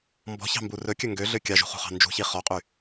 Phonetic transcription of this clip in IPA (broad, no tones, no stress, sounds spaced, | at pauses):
m b ɔ̤ ç ɑ̤ m b u r ɵ kʲ ɵ ŋ ɡ ø ɮ ø kʲ ɑ ʒ ṳ χ ṳ χ ɑ̤ n d͡ʒ ṳ ç i χ ɔ qʼ y